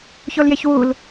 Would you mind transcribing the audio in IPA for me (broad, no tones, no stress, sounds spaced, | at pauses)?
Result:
ç o l j e ç w u l